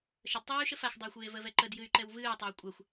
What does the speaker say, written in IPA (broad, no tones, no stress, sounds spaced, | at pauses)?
ʃ ə d tˤ eː y̯ ʃ ə f a x dˤ ɨː xʷ eː v ə v ɛ ǃ ə d j ɨ y̯ ǃ ɛ w v ɨː tˤ a y̯ kʷʼ a xʷ